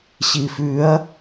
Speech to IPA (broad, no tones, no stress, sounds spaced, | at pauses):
ɕ i f ʉ ɐ̯